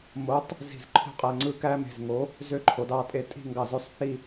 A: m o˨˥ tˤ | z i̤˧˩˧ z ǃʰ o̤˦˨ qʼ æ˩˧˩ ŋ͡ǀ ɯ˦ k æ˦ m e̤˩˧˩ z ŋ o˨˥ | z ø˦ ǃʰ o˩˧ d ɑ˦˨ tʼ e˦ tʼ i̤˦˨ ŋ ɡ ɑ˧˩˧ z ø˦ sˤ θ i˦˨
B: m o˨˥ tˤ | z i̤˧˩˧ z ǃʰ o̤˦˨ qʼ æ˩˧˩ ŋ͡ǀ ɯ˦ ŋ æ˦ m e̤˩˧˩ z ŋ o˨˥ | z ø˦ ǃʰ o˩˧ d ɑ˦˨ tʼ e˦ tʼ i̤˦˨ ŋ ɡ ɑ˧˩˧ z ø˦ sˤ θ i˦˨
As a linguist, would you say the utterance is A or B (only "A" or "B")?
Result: A